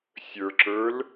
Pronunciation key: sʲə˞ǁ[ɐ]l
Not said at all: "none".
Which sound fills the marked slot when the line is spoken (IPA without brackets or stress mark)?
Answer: ə˞